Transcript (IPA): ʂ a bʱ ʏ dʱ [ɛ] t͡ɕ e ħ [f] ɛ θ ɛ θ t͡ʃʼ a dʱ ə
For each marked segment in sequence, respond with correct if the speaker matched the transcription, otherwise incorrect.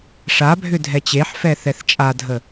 correct, correct

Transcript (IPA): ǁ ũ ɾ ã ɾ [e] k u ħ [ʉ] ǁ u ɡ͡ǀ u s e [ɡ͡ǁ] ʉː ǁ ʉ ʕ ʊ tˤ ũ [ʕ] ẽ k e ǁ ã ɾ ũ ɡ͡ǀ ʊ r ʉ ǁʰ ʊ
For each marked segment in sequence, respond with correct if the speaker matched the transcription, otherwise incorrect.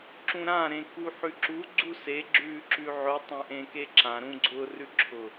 incorrect: ẽ, correct, correct, incorrect: ʔ

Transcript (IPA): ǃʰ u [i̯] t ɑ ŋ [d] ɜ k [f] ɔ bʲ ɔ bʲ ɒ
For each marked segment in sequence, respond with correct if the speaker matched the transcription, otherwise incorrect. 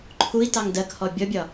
correct, correct, incorrect: h

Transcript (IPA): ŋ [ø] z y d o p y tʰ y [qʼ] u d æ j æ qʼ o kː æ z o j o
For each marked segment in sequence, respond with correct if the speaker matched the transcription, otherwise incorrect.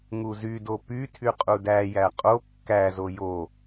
incorrect: u, correct

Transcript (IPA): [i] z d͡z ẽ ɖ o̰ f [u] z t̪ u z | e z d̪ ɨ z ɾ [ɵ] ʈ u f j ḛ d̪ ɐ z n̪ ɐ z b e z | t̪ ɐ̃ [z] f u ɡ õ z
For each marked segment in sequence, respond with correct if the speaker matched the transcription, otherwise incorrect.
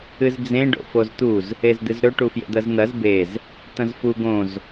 incorrect: ɨ, incorrect: o, correct, correct

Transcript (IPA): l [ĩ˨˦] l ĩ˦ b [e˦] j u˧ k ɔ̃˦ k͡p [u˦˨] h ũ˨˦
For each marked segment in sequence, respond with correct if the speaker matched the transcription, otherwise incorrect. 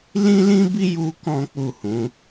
incorrect: ĩ˦, incorrect: i˦, correct

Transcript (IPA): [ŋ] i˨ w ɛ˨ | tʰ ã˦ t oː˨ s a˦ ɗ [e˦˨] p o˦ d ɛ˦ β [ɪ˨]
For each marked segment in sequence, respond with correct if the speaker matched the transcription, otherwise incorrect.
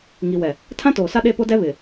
correct, correct, correct

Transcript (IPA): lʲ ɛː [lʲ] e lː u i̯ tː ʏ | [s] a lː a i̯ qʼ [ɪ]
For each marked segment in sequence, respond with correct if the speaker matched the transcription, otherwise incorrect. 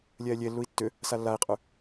correct, correct, incorrect: y

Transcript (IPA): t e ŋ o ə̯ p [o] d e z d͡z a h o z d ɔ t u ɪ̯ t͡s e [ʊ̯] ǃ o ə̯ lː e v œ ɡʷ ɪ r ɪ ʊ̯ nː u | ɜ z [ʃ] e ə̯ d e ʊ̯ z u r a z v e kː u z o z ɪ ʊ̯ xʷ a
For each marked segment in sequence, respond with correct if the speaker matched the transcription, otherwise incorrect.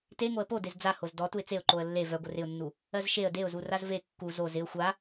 correct, correct, correct

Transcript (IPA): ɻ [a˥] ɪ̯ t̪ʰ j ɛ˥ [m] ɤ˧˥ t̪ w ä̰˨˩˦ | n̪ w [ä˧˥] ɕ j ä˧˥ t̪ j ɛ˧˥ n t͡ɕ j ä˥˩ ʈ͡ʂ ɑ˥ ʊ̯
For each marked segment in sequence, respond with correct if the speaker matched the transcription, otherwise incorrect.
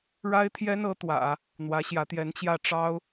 correct, incorrect: n, correct

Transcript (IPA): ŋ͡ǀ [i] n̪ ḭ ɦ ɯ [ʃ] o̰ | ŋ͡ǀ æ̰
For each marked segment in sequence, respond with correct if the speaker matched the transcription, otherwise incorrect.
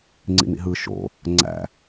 incorrect: ḭ, correct

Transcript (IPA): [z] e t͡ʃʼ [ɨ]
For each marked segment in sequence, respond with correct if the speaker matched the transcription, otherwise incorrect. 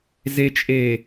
correct, incorrect: e

